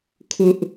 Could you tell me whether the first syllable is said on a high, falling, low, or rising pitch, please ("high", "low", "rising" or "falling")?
high